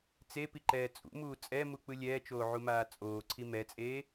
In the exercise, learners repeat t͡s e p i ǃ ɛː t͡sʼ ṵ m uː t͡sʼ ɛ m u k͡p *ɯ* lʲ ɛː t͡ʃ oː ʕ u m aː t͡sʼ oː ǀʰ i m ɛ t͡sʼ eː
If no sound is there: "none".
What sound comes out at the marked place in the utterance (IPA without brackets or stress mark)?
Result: ɯ